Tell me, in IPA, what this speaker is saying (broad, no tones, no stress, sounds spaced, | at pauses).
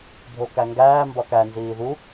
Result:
bʱ o k æ ŋ ɡ æː m b ɒ k æ n z iː ð u